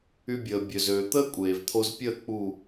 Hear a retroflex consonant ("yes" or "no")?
no